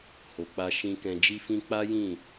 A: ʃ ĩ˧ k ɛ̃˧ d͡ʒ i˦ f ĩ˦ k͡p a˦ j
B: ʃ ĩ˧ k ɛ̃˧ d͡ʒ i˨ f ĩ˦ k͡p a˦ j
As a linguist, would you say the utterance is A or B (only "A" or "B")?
A